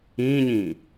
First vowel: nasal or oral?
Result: nasal